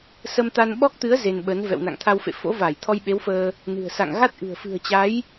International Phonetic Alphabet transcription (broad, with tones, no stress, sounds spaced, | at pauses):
s ə˧ m t̪ a˧ n ɓ ɔ˦˥ k̚ t̪ ɨ˨˦ ə̯ z e˧ n ɓ ə˨˦ n v ɛ̰˧˨ w n a̰˧˨ ŋ t̪ʰ a˧ w f ḛ˧˨ f o̰˧˥ v a˧˩ j t̪ʰ ɔ˧ j ɓ e˨˦ w f əː˧ | n ɨ̤˨˩ ə̯ s a̰˧˨ ŋ ɣ a˦˥ t̚ ʔ ɨ̤˨˩ ə̯ f ɨ̤˨˩ ə̯ t͡ɕ a˨˦ j